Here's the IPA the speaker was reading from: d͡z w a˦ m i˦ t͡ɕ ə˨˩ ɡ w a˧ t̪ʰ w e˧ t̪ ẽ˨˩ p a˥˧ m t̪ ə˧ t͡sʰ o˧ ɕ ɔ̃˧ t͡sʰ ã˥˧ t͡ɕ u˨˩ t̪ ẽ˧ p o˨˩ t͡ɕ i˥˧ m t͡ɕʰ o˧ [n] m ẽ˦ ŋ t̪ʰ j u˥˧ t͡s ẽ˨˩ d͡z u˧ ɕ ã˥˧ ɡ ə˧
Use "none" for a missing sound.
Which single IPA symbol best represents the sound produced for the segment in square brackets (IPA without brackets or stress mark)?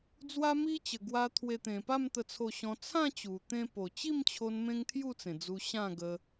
n